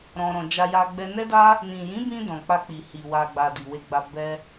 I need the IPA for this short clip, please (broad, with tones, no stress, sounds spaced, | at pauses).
ɾ ɔ̃˧ ɾ ɔ̃˧ d͡ʒ a˧ j a˧ ɡ͡b ɛ˧ n ɛ˦ d a˦ | n ĩ˨ j ĩ˨˦ b ĩ˧ d ɔ̃˨ k͡p a˧ k͡p i˨ h i˨ w a˨ ɡ͡b a˨ d i˨ w e˧ ɡ͡b a˧ b ɛ˦